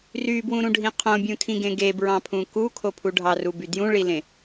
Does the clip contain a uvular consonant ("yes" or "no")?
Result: yes